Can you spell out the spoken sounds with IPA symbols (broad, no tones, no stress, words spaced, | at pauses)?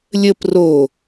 lʲəp ro